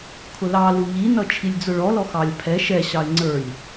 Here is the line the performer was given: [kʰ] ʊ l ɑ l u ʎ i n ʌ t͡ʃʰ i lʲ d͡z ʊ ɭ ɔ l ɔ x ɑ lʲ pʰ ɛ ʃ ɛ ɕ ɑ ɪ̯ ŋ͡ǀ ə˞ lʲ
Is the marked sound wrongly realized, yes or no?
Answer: no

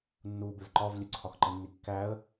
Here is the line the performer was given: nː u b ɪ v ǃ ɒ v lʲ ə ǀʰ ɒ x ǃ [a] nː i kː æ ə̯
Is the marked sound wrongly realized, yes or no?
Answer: yes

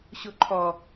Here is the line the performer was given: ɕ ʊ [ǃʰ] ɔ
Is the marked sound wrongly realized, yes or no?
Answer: no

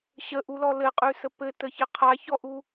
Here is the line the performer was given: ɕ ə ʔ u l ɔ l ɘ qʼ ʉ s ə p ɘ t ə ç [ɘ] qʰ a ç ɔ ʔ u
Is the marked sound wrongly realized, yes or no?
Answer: no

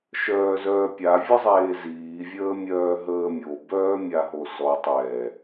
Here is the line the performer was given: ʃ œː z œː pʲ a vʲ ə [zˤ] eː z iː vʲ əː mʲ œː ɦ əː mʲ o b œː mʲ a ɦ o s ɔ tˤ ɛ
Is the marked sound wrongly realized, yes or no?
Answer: no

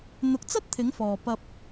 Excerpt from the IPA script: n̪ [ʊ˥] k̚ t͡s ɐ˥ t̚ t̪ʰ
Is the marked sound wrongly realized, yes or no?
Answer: yes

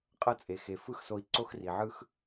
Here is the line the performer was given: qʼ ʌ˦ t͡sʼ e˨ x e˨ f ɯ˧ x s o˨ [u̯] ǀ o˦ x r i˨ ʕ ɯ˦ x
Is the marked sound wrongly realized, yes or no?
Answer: yes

